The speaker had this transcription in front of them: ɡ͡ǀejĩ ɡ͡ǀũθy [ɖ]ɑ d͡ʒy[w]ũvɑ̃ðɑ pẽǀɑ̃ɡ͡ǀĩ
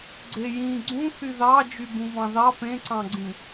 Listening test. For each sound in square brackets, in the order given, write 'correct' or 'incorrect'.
incorrect: ð, incorrect: b

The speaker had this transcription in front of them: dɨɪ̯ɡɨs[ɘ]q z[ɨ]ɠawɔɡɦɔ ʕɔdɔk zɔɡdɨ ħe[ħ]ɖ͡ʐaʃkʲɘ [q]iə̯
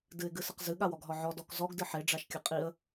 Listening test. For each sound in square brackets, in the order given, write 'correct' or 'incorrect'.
correct, correct, incorrect: none, incorrect: qʼ

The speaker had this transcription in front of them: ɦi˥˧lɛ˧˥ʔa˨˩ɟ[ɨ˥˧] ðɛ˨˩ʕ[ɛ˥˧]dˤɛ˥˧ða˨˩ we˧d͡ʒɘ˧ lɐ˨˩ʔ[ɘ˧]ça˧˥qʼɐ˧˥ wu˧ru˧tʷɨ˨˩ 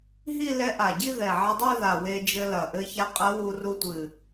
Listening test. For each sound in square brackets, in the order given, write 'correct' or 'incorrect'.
incorrect: i˥˧, incorrect: ɛ˧, correct

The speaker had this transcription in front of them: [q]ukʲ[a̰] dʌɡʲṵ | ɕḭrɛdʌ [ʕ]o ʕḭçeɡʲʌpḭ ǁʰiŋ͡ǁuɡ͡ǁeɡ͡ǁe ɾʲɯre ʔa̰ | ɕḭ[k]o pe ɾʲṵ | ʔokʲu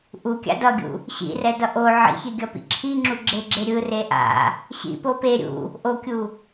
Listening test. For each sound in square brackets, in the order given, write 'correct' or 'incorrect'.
incorrect: ʔ, correct, incorrect: ʔ, incorrect: p

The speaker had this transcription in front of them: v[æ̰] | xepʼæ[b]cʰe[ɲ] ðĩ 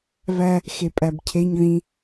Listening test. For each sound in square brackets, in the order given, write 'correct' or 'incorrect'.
incorrect: æ, correct, correct

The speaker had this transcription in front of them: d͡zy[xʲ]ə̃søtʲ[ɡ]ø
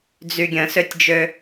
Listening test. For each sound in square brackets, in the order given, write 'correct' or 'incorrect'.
incorrect: ɡʲ, incorrect: d͡ʒ

